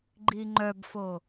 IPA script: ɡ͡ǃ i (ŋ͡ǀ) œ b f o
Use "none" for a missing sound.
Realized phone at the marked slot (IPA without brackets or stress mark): ŋ͡ǃ